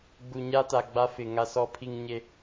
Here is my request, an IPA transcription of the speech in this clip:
ɡ͡bu˨ɲa˦ ta˨ɡ͡ba˦ fɪ˨ ŋa˦sɔ˦pʰi˦ŋ ɲe˦

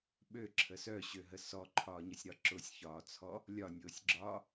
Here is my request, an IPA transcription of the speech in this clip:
ɓøǁʰə sœɕøɦə sɔǃʰɒːɲəsʲɾɒ ǁʊsʲçɒːt͡sʰɔ | lʲɒnʲʊːsʲɡ͡ǁɒː

